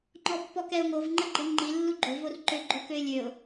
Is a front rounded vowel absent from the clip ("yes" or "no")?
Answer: no